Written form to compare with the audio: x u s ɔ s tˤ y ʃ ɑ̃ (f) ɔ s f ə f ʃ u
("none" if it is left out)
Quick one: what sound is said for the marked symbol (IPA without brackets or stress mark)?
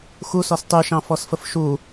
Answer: f